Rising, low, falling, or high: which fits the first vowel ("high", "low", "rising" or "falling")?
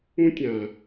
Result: high